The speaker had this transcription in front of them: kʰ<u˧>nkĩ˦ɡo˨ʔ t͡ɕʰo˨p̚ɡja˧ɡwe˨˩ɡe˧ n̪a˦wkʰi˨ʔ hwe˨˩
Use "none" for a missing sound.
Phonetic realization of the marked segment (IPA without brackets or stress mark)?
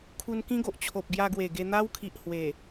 u˧